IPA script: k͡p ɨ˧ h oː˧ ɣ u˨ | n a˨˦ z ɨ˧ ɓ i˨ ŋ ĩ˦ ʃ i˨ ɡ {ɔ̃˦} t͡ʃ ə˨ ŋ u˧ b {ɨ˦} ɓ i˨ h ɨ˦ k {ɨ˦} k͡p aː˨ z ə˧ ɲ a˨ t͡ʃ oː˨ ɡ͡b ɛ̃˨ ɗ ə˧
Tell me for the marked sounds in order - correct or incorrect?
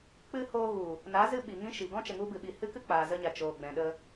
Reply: correct, incorrect: ɨ˨, correct

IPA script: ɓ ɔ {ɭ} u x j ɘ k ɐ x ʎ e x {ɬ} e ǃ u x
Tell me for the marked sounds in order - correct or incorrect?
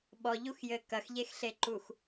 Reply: incorrect: ʎ, correct

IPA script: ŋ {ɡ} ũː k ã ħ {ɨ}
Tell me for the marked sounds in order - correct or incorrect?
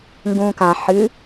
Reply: correct, correct

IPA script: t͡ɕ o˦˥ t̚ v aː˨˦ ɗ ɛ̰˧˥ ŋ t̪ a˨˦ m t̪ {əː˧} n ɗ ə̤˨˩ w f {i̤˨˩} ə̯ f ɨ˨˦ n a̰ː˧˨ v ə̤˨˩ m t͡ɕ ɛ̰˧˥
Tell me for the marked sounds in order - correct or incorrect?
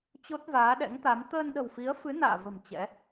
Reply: correct, incorrect: i˨˦

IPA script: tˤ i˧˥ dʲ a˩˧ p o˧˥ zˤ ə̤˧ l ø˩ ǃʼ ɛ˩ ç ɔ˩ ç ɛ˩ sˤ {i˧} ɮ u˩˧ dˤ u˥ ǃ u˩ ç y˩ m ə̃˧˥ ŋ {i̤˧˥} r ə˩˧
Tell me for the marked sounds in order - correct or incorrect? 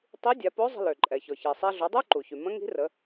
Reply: incorrect: e˧, correct

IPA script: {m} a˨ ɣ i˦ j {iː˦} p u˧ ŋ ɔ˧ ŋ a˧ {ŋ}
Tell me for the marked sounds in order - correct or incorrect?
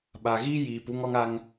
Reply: incorrect: ɓ, incorrect: iː˨, correct

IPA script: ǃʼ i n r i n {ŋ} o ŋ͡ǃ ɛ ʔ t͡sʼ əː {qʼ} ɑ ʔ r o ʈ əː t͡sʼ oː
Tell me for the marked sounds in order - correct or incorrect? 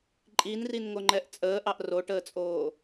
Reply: correct, incorrect: ʔ

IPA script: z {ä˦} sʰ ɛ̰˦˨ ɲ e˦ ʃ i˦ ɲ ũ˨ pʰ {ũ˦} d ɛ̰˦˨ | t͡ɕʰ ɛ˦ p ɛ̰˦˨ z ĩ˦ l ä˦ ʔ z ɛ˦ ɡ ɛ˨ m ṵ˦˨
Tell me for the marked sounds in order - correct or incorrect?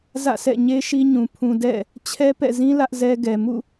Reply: incorrect: ä̰˦˨, incorrect: ũ˨

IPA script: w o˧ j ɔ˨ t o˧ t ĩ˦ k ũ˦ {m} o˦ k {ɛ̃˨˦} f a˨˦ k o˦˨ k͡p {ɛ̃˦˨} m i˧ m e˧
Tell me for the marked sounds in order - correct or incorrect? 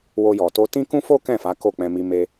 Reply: incorrect: f, incorrect: ɛ̃˦˨, incorrect: ɛ̃˧

